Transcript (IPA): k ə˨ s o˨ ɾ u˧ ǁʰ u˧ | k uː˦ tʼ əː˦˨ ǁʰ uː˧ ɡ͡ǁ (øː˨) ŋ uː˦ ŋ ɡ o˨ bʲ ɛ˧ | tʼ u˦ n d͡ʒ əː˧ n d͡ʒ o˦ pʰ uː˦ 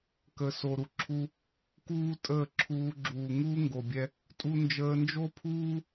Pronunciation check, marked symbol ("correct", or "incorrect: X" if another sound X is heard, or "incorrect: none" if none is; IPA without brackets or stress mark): incorrect: uː˨